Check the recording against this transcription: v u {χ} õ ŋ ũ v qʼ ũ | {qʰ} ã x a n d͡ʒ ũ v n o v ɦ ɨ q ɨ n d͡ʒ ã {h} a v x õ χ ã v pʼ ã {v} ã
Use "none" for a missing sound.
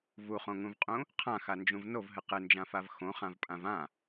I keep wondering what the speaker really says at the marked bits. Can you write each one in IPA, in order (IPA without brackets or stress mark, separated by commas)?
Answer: χ, qʰ, f, v